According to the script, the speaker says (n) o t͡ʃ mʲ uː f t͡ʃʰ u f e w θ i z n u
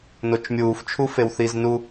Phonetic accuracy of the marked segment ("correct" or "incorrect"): correct